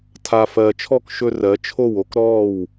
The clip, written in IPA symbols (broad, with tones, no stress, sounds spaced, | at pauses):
tʰ a˨ f ɜː˨ t͡ʃʰ ɔ˦˨ k ʃ ɵ˧ r ɜ˨˦ t͡ʃʰ o˦˨ w o˦ k ɾ ɔː˦˨ w